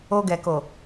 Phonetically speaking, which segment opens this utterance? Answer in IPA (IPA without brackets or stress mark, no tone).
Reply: o